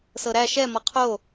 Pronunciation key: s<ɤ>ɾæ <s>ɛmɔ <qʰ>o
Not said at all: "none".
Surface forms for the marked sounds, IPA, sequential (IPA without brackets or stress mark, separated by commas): ɤ, ʃ, qʰ